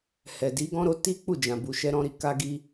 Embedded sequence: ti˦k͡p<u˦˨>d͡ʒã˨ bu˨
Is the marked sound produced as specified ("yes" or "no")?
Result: yes